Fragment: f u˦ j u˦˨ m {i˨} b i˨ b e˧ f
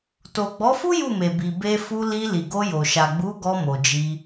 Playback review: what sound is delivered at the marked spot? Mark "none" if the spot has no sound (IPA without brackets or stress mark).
e˨